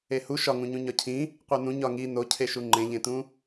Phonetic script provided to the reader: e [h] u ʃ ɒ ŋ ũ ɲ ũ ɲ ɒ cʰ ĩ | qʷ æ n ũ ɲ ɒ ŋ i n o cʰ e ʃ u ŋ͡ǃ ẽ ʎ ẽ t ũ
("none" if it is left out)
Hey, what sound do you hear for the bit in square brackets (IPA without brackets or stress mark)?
h